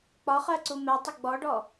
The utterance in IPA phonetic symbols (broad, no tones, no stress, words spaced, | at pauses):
k͡pɒχɜ ǀumɛtˤɪ ɡ͡bɔɖɔ